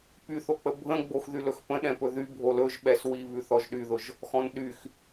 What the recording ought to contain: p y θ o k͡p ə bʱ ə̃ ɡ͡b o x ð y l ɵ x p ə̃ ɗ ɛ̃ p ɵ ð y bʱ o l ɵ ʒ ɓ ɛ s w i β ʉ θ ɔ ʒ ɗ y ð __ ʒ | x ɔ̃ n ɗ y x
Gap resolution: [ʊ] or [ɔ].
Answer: ʊ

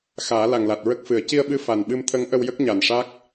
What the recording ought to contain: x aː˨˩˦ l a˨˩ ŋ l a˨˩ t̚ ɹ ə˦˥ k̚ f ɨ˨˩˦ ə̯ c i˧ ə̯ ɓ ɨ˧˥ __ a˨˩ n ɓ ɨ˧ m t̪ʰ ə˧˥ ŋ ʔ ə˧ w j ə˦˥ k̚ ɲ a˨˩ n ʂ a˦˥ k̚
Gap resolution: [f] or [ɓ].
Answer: f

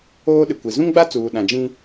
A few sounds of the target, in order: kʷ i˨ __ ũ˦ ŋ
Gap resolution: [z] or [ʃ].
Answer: z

